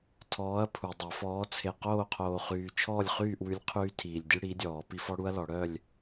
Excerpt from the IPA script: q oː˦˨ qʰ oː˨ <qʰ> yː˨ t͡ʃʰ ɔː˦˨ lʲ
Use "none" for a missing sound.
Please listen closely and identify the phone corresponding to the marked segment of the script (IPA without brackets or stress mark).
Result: χ